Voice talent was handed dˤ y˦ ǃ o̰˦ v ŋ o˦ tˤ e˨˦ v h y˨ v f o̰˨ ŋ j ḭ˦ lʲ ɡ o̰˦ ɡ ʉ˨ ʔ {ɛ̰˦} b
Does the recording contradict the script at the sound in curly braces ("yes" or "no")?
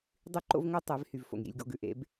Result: yes